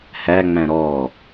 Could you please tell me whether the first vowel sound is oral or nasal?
oral